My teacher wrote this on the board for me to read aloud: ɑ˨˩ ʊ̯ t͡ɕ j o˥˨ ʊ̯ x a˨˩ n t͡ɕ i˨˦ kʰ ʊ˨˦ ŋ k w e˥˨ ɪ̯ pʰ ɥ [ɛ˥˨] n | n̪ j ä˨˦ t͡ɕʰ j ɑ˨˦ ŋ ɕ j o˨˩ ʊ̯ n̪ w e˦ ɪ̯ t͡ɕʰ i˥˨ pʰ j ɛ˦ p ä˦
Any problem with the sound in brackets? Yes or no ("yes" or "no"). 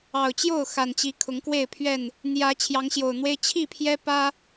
no